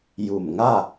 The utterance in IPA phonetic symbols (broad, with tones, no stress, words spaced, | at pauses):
ju˧˩mŋa˥˨